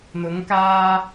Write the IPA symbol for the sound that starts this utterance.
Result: n̪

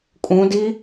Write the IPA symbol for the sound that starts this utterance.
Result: kʼ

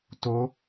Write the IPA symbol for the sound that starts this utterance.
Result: t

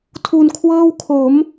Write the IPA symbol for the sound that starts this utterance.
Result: tʰ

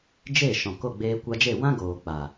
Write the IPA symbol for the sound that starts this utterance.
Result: d͡ʒ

